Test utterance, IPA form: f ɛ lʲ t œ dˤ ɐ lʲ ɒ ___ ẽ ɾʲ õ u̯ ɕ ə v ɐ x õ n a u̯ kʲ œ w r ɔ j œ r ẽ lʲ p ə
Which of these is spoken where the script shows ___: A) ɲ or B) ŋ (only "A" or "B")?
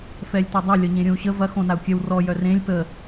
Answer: A